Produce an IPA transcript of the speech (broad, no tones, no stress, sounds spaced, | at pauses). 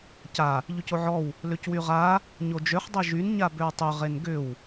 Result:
c a | ʎ y c o ʕ ɔ w | l ø c w y ʁ a | ɲ o d͡ʒ ø χ dˤ e ʒ y n ɲ a b ø w tˤ ʏ ʁ e n ɡ ʏ w